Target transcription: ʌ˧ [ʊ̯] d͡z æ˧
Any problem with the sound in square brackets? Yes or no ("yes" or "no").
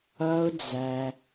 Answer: no